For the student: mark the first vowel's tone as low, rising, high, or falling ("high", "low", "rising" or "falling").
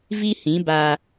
high